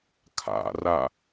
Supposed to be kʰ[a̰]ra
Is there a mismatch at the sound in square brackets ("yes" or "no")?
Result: no